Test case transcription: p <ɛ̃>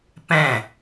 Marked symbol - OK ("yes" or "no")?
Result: yes